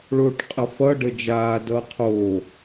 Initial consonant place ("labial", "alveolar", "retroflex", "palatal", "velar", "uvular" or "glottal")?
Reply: retroflex